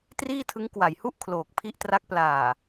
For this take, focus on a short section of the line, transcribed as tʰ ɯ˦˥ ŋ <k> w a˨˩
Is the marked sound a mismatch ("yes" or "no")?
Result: no